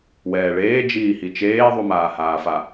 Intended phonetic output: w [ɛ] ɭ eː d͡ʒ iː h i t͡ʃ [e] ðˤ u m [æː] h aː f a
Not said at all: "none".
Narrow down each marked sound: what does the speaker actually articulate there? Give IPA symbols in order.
ɛː, eː, aː

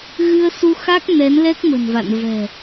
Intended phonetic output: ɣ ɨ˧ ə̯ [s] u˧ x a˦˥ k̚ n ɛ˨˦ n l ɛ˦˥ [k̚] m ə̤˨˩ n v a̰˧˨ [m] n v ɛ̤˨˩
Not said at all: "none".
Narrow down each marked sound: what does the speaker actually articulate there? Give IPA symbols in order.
s, k̚, none

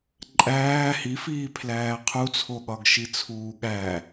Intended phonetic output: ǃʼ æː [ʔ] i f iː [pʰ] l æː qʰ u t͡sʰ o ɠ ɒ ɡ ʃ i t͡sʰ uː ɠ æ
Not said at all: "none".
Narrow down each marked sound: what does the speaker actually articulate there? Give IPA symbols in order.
h, pʰ

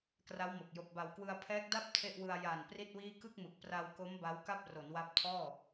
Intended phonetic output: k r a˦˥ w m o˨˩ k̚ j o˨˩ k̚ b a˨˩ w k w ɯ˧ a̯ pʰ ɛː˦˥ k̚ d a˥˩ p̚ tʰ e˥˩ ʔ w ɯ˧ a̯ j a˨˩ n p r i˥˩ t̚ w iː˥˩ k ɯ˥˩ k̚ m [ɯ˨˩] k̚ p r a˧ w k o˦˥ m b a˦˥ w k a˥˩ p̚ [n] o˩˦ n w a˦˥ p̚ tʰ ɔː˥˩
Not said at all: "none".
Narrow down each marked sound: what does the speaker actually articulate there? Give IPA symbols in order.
ɯ˨˩, r

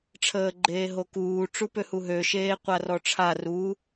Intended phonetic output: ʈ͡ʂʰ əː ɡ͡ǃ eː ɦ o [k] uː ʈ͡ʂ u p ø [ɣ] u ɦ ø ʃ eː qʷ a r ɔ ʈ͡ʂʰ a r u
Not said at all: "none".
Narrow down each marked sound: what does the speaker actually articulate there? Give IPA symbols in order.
k, h

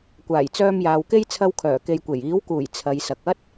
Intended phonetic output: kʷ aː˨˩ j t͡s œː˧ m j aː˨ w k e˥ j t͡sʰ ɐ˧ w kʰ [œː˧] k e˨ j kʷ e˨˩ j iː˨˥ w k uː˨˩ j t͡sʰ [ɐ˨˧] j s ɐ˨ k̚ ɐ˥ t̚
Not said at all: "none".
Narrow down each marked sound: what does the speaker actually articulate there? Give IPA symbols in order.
œː˨˩, ɐ˨˧

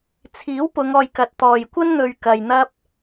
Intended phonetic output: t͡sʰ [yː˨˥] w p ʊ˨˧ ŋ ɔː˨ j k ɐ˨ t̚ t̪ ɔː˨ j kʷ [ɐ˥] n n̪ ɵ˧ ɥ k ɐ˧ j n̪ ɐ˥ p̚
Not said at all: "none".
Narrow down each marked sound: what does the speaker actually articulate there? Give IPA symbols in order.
iː˨˥, ɐ˥

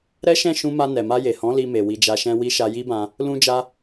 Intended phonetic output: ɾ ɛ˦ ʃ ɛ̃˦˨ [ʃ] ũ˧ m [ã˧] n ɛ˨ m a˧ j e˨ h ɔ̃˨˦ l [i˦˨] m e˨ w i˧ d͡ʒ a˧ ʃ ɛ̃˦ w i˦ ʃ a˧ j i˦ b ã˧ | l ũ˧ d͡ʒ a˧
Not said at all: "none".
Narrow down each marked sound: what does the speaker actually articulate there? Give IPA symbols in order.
ʃ, a˧, i˧

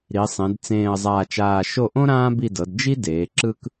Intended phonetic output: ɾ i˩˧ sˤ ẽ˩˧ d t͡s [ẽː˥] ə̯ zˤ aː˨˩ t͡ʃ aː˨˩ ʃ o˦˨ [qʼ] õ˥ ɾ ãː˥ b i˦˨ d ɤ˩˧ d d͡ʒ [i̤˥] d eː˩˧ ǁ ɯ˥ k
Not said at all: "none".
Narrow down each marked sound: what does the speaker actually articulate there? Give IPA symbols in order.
ẽː˨˩, ʔ, i˥

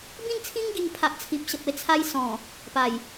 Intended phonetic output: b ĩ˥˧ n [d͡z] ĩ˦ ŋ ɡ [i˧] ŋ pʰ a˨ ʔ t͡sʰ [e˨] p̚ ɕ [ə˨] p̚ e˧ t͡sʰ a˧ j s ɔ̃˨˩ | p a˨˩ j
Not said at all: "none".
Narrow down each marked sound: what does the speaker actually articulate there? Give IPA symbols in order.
t͡sʰ, i˧, i˨, ə˨

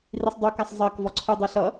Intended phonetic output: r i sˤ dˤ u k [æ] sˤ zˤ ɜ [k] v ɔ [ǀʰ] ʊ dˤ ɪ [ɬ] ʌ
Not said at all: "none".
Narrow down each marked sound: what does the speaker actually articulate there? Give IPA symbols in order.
æ, k, ǀʰ, ɬ

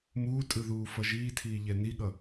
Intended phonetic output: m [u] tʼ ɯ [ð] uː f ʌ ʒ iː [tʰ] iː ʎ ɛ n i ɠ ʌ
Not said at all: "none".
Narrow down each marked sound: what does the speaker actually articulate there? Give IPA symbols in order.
uː, ð, tʰ

